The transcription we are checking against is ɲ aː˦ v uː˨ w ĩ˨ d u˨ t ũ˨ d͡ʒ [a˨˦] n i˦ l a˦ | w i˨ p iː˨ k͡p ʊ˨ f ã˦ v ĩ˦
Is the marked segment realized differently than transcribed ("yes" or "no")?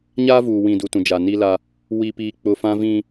yes